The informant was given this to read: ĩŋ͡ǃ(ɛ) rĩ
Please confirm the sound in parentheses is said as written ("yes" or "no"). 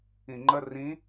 no